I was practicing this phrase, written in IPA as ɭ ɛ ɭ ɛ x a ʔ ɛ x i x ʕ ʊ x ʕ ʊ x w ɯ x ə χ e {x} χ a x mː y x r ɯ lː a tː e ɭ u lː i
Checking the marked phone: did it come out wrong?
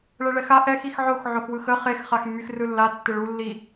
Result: no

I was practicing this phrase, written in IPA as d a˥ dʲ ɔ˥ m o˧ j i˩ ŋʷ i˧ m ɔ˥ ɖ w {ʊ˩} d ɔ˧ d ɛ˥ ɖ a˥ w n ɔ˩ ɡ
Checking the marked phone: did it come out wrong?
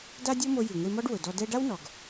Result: no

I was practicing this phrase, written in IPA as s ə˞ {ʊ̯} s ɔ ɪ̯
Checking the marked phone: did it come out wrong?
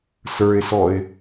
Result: yes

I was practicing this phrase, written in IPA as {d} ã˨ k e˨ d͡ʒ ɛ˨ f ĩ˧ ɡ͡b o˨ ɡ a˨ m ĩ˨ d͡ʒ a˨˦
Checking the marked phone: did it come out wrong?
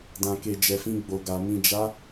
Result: no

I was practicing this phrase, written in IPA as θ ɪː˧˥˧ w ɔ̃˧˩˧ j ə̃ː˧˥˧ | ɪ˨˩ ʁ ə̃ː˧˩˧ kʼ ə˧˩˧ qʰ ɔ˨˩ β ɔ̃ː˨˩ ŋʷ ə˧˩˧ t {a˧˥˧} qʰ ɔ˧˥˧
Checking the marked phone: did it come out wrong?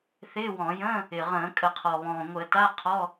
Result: no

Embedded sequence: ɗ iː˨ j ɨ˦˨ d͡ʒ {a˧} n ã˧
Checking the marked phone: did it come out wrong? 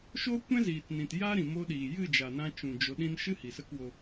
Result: yes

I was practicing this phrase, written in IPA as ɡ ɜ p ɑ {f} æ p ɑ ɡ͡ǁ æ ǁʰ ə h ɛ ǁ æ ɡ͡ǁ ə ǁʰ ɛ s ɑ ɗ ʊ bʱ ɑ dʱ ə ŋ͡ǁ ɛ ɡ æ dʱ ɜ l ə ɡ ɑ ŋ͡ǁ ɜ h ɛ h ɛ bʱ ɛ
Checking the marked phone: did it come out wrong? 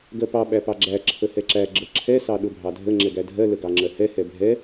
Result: yes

